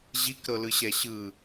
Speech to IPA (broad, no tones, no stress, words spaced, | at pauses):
ʑikɾɤlɯɕɛ ɕɯ